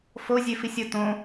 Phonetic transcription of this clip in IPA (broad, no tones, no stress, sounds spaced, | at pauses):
f o zʲ ø f i sʲ o t õ